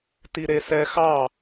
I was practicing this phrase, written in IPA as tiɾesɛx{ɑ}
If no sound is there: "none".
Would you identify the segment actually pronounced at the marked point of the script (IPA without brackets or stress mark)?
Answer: ɑ